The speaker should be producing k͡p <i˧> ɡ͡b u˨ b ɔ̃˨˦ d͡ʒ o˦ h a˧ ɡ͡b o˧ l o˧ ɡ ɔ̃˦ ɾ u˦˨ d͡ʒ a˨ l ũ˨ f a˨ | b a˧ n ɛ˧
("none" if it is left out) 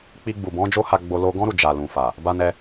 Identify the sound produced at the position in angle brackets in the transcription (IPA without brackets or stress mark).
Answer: i˧